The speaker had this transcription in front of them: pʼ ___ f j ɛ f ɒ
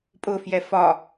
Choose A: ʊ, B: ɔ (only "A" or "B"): A